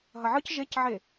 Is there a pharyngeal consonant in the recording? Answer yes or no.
yes